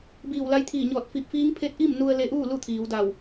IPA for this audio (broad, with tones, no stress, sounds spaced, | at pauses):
b iː˧˩ w l a˧ j t̪ʰ iː˧˩ ɲ ɔː˧˩ t̚ f i˧˩ p̚ f iː˧˥ ŋ pʰ e˧˥ t̚ ʔ i˥˨ m n u˧ ə̯ l e˧ ʔ uː˥˨ l u˥˨ t̪ʰ iː˩˧ w d a˧˩ w